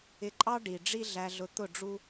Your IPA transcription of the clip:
ɪ˧ǃʼɑ˦ ɖi˨ ɖ͡ʐi˦ɮæ˧ɮʊ˧ t̪ʊ˦˨ɖ͡ʐu˦

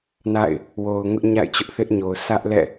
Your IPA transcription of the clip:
na̰˦˨ɪ̯ | wo˨ʊ̯ŋʊ˦ʔ ɲa̰˦˨ɪ̯t͡ɕʊ˦ʔθɪ˦ʔɲo˨ʊ̯ sä˦ʔlɛ̰˦˨

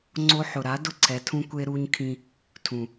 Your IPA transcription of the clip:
ŋ͡ǀo˧ħʊ˨ɾa˨˦dʊ˦˨ ǀʰɛ˨tʰũ˧ kʷe˧ɾu˧ɲkʰĩ˧ | tʰũ˨

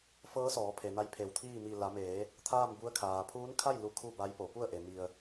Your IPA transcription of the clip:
fɤː˧˥sɔː˩˧pʰe˩ na˧jpʰe˧˩w t̪ʰiː˥˨ mi˧˩ la˩˧meː˩˧ | t̪ʰaː˥˨mbu˧˥ə̯ kʰaː˩pʰuː˧˥nkʰa˥˨j lu˧˥kʰu˥˨ba˧˥jpo˩˧ pu˥˨ə̯ʔe˩ mi˧ə̯

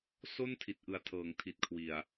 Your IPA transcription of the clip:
so˥˩ntʰi˨˩t̚ʔɯ˨˩a̯tʰɤː˩˦ŋ tʰi˨˩t̚kʰwi˨˩a̯

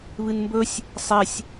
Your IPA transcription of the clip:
βɨnmbɵsʲ | sˤesʲ

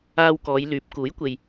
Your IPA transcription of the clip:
aː˧wkɔː˨˧jlyː˨˥p̚ kuː˨˥jkʷe˨j

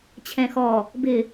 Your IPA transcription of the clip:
t͡ɕʰɛ̃xɔ | bɪ

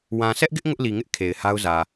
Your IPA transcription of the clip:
wã˨ sʰɛ˦ʔɡɪ˦ʔ ŋʊ˦ʔli˨ŋɪ˦ʔ kʰe˨ɪ̯ha˦ʊ̯zä˨

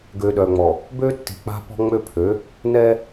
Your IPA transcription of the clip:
ɡø˨ɗœ˨ŋ͡mɔ˨ | bø˦tːi̤˨ k͡pa̤˦pɔ̤˦ ŋ͡mø˦pʰø˨˦ | nɛ˦

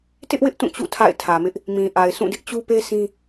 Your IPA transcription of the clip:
tɪ˦ʔwɪ˦ʔ tũ˦˨t͡ɕṵ˦˨ tʰa̰˦˨ɪ̯tʰä˨mɪ˦ʔ | mĩ˨ʔa˨ɪ̯ sũ˦˨dɪ˦ʔ t͡ɕu˦pe˦ sʰĩ˦

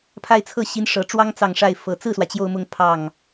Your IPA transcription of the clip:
pʰa˥˧ɪ̯t͡sʰɤ˥˩ɕi˧˥n ʂɤ˨˩ʈ͡ʂwɑ˥ŋ t͡sɑ˨˩ŋ ʂa˥˩ɪ̯fɤ˨˩ t͡sɹ̩˥˩swä˩ t͡ɕjo˥˧ʊ̯mʊ˥˧ŋ pʰɑ˥˩ŋ

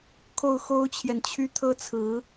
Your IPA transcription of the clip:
kʰo˥˩ʊ̯xo˥ʊ̯t͡ɕʰjɛ˨nt͡ɕʰy˥˩ t̪ʰɤ˥t͡sʰɹ̩˧˥

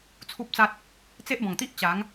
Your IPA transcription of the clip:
t͡sʰu˦p̚t͡sa˦t̚ | t͡se˦ʔ bɔ̃˨˩ŋt̪i˦ʔ t͡ɕa˨˦ŋ

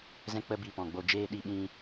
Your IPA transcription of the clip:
zɛ̃˦k͡pə˦bi˧ pɔ̃˨ɡ͡bo˧ d͡ʒeː˧ɗi˧ɓĩ˧

